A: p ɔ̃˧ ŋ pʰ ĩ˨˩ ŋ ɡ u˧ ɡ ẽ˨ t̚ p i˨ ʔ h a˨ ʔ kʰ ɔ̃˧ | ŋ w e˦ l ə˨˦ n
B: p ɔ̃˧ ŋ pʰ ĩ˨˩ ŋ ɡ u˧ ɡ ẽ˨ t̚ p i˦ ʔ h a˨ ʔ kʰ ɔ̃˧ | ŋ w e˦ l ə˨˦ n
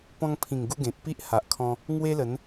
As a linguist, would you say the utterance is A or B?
B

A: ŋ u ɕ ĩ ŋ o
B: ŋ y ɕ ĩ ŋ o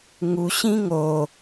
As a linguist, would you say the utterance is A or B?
A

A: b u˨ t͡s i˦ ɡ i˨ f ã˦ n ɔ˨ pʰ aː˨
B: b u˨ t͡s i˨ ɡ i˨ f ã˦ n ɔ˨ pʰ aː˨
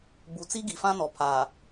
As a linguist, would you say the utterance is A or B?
A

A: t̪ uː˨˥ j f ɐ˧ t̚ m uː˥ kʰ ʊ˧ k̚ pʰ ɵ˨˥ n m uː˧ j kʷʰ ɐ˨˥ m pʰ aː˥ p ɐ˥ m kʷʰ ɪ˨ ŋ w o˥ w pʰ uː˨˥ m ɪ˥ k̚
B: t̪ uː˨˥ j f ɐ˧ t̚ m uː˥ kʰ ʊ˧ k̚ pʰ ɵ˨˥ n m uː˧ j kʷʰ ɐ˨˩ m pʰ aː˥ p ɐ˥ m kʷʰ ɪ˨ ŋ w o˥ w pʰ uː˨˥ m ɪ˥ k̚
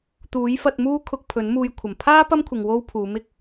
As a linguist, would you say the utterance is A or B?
B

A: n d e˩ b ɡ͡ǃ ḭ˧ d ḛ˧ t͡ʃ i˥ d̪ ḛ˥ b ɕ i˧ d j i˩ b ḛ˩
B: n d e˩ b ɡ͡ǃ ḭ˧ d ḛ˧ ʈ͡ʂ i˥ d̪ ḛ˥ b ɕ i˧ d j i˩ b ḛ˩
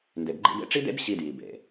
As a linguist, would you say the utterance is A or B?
B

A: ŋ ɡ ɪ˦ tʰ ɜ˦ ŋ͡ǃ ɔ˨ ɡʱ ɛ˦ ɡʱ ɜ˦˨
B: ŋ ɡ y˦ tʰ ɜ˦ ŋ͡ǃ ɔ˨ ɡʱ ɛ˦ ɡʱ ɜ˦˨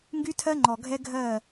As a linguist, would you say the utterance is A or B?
B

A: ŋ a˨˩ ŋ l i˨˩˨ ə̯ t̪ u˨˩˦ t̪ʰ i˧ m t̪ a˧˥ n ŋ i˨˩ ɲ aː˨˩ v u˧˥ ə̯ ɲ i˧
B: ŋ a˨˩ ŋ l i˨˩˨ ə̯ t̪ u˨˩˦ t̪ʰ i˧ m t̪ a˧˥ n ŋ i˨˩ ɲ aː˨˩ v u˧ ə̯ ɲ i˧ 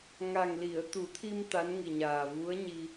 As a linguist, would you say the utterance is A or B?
A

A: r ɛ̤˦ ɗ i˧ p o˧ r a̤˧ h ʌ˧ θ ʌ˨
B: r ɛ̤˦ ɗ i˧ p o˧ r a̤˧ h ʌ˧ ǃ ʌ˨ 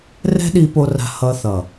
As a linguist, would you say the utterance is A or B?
A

